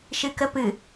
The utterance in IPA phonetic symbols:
ʃ ɨ k ə p ɨ

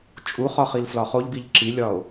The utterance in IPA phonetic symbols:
t͡ʃʼ u χ ɒ χ i l f l ɒ χ o ʎ b i ʎ ǁ i lʲ ɒ o̯

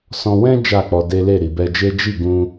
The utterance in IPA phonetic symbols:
s ɔ̃˧ w ɛ̃˦ d͡ʒ a˦˨ k͡p ɔ˧ d e˦ l e˦˨ ɾ i˨ b ɛ˧ d͡ʒ e˦ d͡ʒ i˦˨ ɡ ũ˧

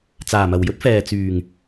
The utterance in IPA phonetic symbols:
t͡s aː˨˩ m ɐ˨˩ w j ɵ˥ t̚ f ɛː˨ t͡s yː˨˩ ŋ

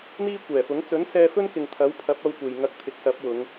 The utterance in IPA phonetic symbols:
n̪ iː˥ kʷ ɛː˨˩ f ʊ˨˥ ŋ t͡s ɵ˨˥ n s ɛː˧ f ɵ˥ n k ɪ˨ ŋ t̪ʰ ɐ˨˥ w pʰ ɐ˨˥ p̚ ɐ˧ w kʷ e˨ j ŋ ɐ˧ k̚ t̪ʰ ɪ˨˥ k̚ s ɐ˨˥ p̚ w ʊ˨˧ ŋ

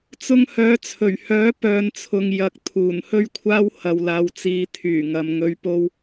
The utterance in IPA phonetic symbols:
t͡s ʊ˥ ŋ h œː˨˧ t͡sʰ ɵ˨˩ ɥ h œː˨˥ p œː˨˧ n t͡sʰ ʊ˨ ŋ j ɐ˨ k̚ t̪ʰ uː˨˩ n h ɵ˥ ɥ kʷʰ aː˥ w h ɐ˨ w l aː˨ w t͡s iː˨˧ t̪ʰ yː˨˩ ŋ ɐ˨ m ŋ ɵ˨˧ ɥ p o˧ w

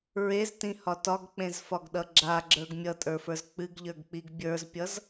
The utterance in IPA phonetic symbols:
ɹ e z t ĩ h ɒ t ɒ ɡ k͡p ẽ z f ɒ ɡ ɗ ʌ ɡ͡ǁ a ɡ͡ǁ ə˞ ɡ mʲ ʌ tʼ ə˞ f ə˞ z k͡p ɨ ɡ ʎ ə˞ ɡ k͡p i ɡ bʲ ə˞ z pʲ ʌ z

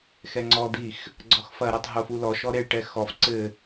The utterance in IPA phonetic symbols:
x ɛ ŋ͡ǀ ɔ d̪ i x | ɡ͡ǀ ɔ x f ɐ ɾ e tˤ ɦ o f u l ɔ ʃ ɔ ɾ e ɭ ʈ ɛ x ɔ f ǀ ɘ

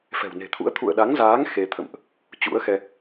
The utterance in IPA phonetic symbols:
f ɛ̤˨˩ w n e̤˨˩ t̪ʰ ṵ˧˥ ə̯ t̪ʰ ṵ˧˨ ə̯ ɗ a˨˦ ŋ z aː˨˦ ŋ x e˧ t̪ʰ ə̰˧˨ m ʔ | t͡ɕ ṵ˧˥ ə̯ x ɛ˧

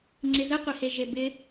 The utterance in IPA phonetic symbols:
ŋ͡ǀ ɪ z ə qʷ i h e ʒ e b ɪ

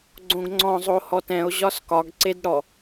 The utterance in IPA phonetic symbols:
ɡ͡ǀ õ ɡ ŋ͡ǀ ɔ̃ zˤ o h ɔ t ɛ̃ o̯ ʑ ɒ s k ɒ ɡ ǀ e d ɽ ɔ

